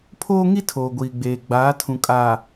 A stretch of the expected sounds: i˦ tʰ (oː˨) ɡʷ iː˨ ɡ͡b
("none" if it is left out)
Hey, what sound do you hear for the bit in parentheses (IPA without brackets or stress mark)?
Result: oː˨